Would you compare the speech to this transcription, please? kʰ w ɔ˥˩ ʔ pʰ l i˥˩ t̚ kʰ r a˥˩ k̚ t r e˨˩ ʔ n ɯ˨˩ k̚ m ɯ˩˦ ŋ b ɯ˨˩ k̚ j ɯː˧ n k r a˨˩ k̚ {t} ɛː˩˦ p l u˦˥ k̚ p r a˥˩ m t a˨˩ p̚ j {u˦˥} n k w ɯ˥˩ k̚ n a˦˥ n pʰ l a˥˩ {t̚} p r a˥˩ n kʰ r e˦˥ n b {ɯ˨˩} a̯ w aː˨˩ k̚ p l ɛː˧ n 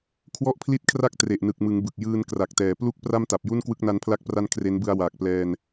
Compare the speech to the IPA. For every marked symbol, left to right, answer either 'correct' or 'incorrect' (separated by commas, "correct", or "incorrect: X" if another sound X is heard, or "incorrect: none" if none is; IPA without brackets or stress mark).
correct, incorrect: u˥˩, incorrect: k̚, incorrect: ɯ˧